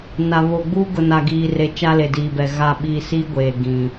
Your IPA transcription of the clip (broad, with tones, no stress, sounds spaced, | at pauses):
n a˨ β o˨ ɡ͡b uː˦ ɡ ʊ˨ n a˨ ɡ iː˨ r e˨ t͡ʃ a˦ l e˨ d iː˨ b ɛ˨ ɣ a˦˨ ɓ iː˦ s i˦ ɡʷ eː˨ ɡ ĩ˨